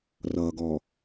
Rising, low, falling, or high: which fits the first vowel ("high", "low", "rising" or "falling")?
low